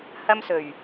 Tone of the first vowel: high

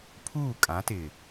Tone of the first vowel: falling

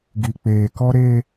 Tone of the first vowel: low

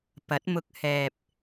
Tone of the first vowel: rising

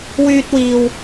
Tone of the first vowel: high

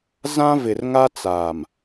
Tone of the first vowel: high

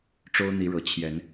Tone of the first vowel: high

